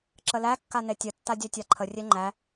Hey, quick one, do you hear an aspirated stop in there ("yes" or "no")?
yes